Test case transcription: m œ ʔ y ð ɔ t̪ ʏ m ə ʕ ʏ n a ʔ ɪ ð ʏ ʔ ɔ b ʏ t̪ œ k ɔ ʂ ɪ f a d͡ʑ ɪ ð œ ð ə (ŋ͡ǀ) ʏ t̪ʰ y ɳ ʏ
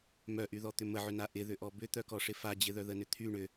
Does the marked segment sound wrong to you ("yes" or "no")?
yes